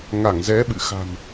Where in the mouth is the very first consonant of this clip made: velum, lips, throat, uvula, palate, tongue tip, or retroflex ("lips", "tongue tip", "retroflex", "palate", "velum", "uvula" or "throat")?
velum